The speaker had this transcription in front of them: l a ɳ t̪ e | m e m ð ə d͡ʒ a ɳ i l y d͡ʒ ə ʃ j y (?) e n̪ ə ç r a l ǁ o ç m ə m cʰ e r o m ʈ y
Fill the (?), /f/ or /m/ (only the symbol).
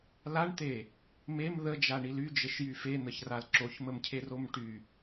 f